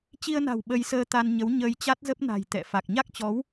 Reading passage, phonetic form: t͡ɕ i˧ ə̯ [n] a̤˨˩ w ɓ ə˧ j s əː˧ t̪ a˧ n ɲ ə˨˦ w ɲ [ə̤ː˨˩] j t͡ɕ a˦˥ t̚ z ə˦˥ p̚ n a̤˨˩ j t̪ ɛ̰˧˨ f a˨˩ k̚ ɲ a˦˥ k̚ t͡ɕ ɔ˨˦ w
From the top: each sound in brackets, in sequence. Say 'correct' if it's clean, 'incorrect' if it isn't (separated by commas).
correct, incorrect